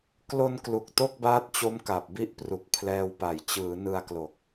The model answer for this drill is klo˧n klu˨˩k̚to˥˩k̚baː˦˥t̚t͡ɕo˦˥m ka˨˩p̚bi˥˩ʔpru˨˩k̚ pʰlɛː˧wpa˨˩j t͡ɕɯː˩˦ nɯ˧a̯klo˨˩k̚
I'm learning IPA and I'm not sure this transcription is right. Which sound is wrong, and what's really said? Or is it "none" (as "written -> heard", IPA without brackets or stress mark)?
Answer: none